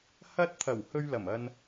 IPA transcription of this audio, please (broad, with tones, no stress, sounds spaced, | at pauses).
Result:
h ɐ˧ t̚ t̪ʰ ɐ˨˩ w h ɵ˧ ɥ l ɐ˨˩ m ɐ˧ n